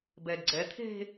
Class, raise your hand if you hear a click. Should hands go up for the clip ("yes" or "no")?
yes